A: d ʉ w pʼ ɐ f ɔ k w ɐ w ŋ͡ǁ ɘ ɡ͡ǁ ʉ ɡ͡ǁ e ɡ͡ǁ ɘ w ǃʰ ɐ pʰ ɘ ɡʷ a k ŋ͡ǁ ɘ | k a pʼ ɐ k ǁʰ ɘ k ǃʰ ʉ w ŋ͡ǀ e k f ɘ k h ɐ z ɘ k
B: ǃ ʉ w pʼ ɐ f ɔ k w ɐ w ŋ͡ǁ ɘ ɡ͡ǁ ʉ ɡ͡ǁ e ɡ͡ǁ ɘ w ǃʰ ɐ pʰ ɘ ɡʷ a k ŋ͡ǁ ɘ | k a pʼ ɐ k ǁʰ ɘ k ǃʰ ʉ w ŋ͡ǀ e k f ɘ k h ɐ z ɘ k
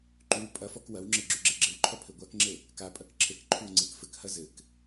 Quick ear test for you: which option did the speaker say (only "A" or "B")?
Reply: B